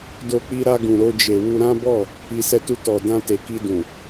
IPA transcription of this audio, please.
d o˧ k͡p i˧ ɾ a˧ ɡ ũ˨ ɾ o˧ d͡ʒ e˨ w u˧ ɾ ã˦ b ɔ˦˨ | i˨ s ɛ˧ t u˧ t ɔ˨ d ã˧ t e˨ k i˧ d ũ˨

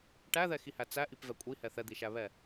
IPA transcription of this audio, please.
ʈ æ ð ɛ x i h æ t͡s æ ʔ i p v ɛ kʷʼ i h ɛ θ ɛ d̪ i ʃ æ β ɛ

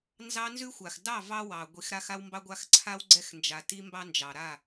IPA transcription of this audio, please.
n z ɑ˦ n z ʉ˦ xʷ a˨ x d ɑ˦˨ v ɑ˦ w ɑ˨ ɡʷ i˨˦ x ɾ a˦ x a˦ w m b ɑ˦ ɡʷ a˦ x ǀʰ a˦ w ɡ͡ǀ ɛ˦ x n d͡ʒ a˨ t i˦ m b ɑ˦ n d͡ʒ ɑ˨ ɾ a˦˨

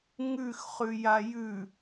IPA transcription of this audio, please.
ŋ ʉ x χ ʉ j a j ʉ

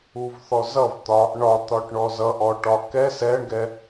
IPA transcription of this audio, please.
u v θ ɔ z ʌ v t̪ ɒ | ɳ ɒ t̪ ɒ ʈ ɳ ɔ z ʌ ʔ ɔ ʈ ɒ k ɛ s ɛ ɳ ɡ ɛ

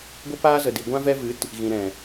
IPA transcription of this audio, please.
ɡʷ ə˧ p aː˧ z ə˨ d i˨ ɡʷ ã˧ v ɛ˧ v ɨ˨˦ t | ɣ ĩ˨ ɾ ɛ̃˨

